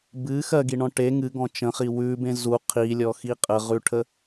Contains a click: no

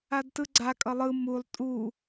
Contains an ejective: yes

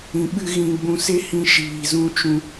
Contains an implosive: yes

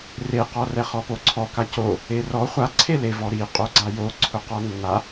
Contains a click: yes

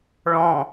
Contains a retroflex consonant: yes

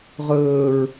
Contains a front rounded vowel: no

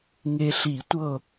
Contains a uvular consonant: no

